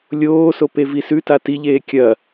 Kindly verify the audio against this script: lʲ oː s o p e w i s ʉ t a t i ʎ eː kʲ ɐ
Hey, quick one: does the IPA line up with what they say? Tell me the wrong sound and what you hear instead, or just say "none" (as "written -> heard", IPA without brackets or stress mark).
w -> v